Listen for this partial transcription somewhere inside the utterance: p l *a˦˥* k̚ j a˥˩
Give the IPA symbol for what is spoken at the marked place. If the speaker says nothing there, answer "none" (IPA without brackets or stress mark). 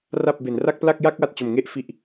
a˥˩